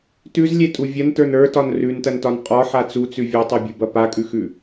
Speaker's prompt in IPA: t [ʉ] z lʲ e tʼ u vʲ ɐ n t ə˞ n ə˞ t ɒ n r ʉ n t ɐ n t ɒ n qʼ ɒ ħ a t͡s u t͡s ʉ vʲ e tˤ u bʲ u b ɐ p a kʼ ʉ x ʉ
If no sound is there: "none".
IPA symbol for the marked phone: ʉ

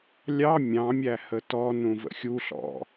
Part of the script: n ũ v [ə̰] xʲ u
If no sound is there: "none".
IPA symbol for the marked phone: ə̰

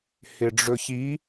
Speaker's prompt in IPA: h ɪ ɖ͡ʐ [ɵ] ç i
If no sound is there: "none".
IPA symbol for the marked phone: ɵ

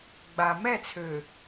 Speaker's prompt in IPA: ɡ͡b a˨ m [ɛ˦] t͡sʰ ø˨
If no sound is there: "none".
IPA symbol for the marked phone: ɛ˦˨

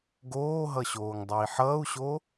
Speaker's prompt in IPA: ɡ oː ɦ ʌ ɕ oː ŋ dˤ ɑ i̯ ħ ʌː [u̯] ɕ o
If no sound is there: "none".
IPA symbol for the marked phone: u̯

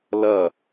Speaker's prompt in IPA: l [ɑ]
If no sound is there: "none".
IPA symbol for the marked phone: ɐ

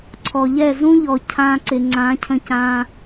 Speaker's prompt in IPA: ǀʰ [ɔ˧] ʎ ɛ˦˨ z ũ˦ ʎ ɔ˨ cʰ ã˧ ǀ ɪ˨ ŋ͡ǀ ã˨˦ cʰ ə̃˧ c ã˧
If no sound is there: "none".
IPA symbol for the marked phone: ɔ˨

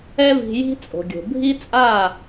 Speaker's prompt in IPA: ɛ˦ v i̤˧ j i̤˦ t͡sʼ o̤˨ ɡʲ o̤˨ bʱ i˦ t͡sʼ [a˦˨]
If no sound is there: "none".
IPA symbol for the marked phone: a˦˨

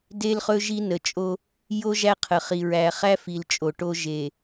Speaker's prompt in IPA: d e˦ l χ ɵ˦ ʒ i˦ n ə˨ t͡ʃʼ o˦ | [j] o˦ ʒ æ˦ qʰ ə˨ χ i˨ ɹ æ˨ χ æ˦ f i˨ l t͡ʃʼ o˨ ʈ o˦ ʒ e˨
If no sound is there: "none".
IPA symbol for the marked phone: j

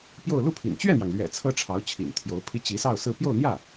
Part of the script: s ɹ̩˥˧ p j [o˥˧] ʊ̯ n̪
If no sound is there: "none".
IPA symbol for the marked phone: o˥˧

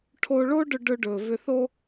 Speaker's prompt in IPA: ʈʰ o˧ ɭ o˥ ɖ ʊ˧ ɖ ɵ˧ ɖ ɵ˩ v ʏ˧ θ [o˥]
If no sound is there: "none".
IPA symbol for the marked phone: o˥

